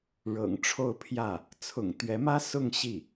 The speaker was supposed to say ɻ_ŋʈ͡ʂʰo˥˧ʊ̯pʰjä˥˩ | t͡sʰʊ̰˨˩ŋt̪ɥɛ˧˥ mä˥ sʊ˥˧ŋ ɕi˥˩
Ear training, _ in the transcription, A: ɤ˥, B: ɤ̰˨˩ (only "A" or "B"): B